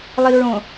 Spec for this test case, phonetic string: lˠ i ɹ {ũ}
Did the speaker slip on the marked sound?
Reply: yes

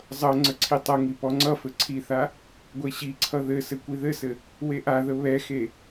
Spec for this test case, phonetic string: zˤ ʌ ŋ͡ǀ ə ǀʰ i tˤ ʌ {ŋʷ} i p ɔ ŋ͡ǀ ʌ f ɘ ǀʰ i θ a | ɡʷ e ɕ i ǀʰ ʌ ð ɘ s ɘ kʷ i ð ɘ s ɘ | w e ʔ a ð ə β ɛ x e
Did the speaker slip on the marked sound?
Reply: yes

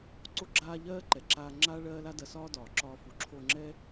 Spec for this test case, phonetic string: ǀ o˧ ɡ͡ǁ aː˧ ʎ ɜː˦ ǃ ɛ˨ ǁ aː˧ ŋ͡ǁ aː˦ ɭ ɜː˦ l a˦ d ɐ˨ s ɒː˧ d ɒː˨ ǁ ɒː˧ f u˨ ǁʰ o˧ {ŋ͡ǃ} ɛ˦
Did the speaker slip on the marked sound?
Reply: yes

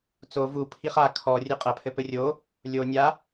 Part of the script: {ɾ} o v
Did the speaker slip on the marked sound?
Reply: yes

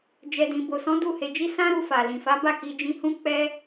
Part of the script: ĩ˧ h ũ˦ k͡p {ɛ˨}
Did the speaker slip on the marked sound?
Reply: yes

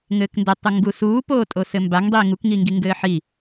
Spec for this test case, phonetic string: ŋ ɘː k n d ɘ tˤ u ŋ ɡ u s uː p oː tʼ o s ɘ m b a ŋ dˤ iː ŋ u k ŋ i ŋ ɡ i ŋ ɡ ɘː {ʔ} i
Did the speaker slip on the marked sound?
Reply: yes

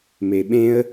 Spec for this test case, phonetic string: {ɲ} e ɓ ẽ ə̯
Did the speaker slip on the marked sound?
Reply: yes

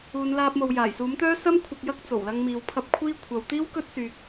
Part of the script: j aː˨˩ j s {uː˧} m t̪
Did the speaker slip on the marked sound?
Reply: yes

